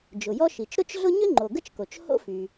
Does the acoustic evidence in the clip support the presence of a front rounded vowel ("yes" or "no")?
yes